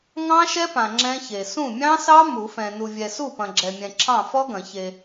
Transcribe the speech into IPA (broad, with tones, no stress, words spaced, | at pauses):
ŋɑ̃˦˥ʃɛ˦˥pã˨ ŋ͡ǁɛ̃˦˥çe˨ sũ˥˩mʲɑ̃˦˥sɑ˦˥ mu˨˩˦fɛ̃˨ nu˨vʲɛ˨su˥˩pɐ̃˨ ɡ͡ǁɛ˨mʲɛ̃˨ ǁʰɑ̃˥˩fɔ˦˥ɡɐ̃˨˩˦ çe˨